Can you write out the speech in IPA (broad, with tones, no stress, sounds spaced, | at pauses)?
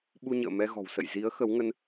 ɓ u˧ ɲ ə̰ː˧˨ m ɛ˧ ɣ ɔ̤˨˩ w s ə̰˧˨ j z i˨˦ ə̯ x ə˨˦ w ŋ ə˧ n